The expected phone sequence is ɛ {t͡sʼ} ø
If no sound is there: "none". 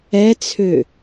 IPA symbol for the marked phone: t͡sʰ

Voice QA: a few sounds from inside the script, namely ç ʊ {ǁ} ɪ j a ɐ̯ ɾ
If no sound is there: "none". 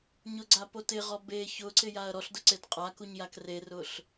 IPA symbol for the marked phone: ǀ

